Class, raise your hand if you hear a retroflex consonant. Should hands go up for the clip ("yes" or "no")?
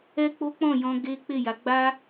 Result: no